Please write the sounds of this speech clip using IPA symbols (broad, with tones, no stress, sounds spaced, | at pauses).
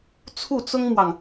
t͡sʰ u˥˩ t͡s ʊ˥ ŋ m w ɑ˨ ŋ